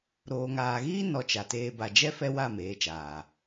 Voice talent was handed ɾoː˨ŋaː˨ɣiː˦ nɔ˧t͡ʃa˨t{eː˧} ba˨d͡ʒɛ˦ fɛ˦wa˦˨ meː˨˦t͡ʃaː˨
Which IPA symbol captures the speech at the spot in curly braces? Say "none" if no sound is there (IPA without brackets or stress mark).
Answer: eː˧